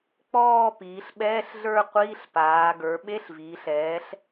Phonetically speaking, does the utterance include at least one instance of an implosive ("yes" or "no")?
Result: yes